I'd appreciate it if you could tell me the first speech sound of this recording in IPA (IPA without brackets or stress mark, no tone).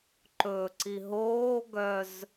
ǃ